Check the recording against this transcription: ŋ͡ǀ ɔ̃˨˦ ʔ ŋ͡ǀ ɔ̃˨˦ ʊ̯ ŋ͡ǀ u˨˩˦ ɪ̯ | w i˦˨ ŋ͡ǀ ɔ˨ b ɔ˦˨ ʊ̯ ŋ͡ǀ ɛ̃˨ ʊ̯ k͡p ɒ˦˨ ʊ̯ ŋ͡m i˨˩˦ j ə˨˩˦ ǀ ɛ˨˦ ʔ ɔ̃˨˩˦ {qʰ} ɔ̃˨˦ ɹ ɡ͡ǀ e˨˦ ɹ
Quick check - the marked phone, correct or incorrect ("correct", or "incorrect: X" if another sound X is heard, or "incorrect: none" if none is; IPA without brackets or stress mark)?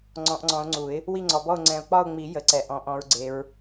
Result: incorrect: ʔ